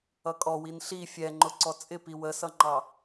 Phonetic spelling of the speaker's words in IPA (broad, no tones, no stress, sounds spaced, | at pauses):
ʌ kʼ ɔ w i n ɬ i fʲ ɛ ŋ͡ǃ ʊ ǀ ɔ t͡sʼ ɪ p i w ə s ʌ ŋ͡ǃ ɑ